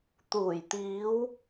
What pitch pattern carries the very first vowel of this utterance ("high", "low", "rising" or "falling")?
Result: low